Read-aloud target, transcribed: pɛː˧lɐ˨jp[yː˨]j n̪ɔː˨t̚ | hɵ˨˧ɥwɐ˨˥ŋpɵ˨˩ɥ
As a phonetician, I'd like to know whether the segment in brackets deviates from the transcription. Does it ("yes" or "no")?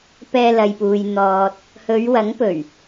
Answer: yes